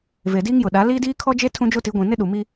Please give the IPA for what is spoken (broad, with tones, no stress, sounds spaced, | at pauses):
v e˨ d iː˦ ŋ j ʊ˨ ɗ a˨˦ l iː˦ d iː˦ kʰ ɔ˦ d͡ʒ e˦ tʰ ũ˦ d͡ʒ o˦ t i˨˦ ɡʷ ĩ˨ n ɪ˦ ɗ u˨ m i˦